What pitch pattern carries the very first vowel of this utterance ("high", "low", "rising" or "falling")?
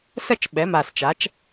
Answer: falling